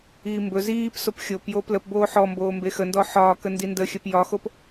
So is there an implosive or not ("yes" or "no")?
no